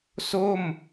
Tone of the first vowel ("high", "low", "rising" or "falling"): falling